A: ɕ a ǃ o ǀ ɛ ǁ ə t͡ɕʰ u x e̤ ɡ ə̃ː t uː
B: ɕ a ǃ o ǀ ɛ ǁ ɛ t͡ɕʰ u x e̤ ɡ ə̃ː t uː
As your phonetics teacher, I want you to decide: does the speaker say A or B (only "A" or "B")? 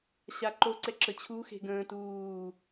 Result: A